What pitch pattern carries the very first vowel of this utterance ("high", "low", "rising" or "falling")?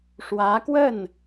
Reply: rising